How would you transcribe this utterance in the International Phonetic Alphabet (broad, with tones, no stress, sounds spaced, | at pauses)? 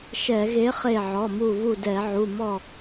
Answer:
ʃ ɛ˧˩˧ ɣ e˨˥ χ e˧˩ ʕ ɔ˩˧˩ m u˧˩ β u˧˩ d ɛ˧˩˧ ʕ u˩˧˩ m ɔ˧˩